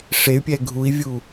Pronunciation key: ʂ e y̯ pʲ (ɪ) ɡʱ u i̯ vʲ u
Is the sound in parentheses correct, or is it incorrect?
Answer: incorrect